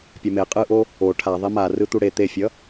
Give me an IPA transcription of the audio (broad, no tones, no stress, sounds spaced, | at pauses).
pʲ a m e qʼ ɯ ʔ o | o ʈʰ a ðˤ i m a r ɯ t̪ u ɽ e t̪ e fʲ ʌ